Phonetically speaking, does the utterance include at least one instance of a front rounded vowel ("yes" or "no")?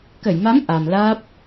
no